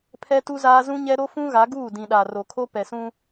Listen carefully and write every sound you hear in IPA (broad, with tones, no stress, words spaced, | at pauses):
pʰɛ˦tu˦zaː˦ zũ˦ɲɛ˦ɾo˦ fũ˦ɣa˨˦ɡuː˦˨dĩ˨ ɗa˨ro˨kʰo˦ pɛ˨sũ˦